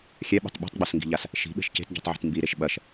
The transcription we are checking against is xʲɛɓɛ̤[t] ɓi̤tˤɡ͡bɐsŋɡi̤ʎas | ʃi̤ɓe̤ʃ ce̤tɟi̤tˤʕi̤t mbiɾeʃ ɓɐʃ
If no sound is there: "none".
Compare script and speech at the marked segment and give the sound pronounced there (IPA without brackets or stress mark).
tˤ